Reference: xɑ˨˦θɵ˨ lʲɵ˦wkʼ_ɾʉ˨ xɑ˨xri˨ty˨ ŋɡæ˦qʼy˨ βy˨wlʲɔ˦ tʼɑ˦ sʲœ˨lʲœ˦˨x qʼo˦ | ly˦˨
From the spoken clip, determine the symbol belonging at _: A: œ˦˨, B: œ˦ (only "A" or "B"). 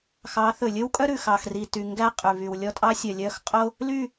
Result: B